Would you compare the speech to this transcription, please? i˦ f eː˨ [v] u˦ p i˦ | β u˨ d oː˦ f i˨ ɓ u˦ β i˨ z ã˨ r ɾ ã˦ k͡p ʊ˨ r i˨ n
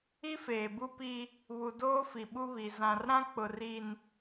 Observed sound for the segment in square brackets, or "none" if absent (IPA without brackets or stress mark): b